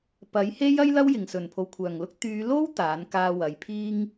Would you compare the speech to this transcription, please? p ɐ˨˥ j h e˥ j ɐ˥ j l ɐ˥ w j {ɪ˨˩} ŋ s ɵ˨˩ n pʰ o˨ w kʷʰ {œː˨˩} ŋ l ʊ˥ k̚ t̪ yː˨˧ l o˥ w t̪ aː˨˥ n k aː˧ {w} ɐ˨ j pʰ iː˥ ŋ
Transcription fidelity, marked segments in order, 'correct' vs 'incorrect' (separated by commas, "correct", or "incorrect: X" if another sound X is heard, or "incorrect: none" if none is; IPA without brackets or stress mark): correct, correct, correct